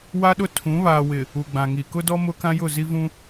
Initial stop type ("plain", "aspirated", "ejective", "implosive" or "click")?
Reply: implosive